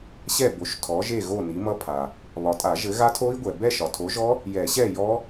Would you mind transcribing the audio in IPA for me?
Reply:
ɕ ɛ˥˨ b o˨˥ ʃ tʰ ɔ˨˥ ʒ e˥˨ ɣ o˥˨ n i˨˥ m ʌ˦˥ pʰ a˨ | β ɒ˨ tʼ a˨˩˦ ʒ ɘ˨˥ ɣ a˦˥ tʰ o˦˥ i̯ ɡʷ ɛ˨ b ɛ˥˨ ʃ ɒ˨ tʰ o˨˥ ʒ ɔ˦˥ | j ɛ˨˩˦ ɕ ɛ˥˨ j ɔ˦˥

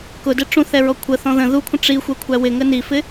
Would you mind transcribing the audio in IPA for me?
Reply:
k ʊ d ɪ ʈ͡ʂ ũ θ ɛ ɹ ɔ kʷʰ ə θ ɔ̃ ð ə̃ ð u kʷʰ ə̃ ʈ͡ʂ i xʷ ɛ kʷʰ æ w ɪ ŋ ə n i f ɪ

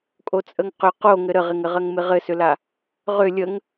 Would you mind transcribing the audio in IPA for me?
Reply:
kʼ o t͡sʼ ə ŋ q ʏ q o ŋ ɘ ɾ ə ʁ ɪ ŋ ɘ ʁ ɜ ŋ m ɪ ʁ ɘ s ʏ l a | ʁ ʏ lʲ ə ŋ

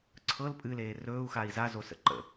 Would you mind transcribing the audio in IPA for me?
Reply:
ǀʰ ɤ l pʼ ɨ l eː r ɵː u̯ x a i̯ z a z o s ə̰ ǃ ə̰

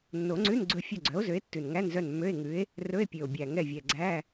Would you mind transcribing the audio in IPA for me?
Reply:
nː o˨˩˦ ŋ͡ǀ ʉ˧˥˧ n ɡ͡ǀ ɵ˦˨ fʲ œ˦˨ ɡ͡ǀ œ˨˥ o̯ z ø˨˥ e̯ tː ʉ˨˩ n ŋ æ˧˥˧ n z œ˦˨ n mː ø˧˥˧ e̯ ŋ ʉ˨˥ e̯ | r ɵ˧˥˧ e̯ pʲ ø˨˩ o̯ bʲ æ˨˩ ŋ ɛ˦˨ vʲ ɛ˨˩ ɡ͡ǀ æ˧˥˧

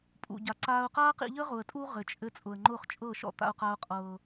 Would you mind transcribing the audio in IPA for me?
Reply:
pʼ ṵ˨ ɟ a˨ ǀ aː˨ ʊ̯ q aː˦ q ḭ˦ ʎ ə˦ ʁ ʊ˨ ə̯ tʼ u˦ ʁ ɘ˨ t͡ʃʼ ɘ˦ t͡sʼ ʊ˨ ə̯ ŋ͡ǃ ʊ˦˨ χ t͡ʃʼ ɤ˦˨ ʃ ɔ̰˦ t̪ a̰˦ ʊ̯ q a˦ ʊ̯ qʼ ɤː˦

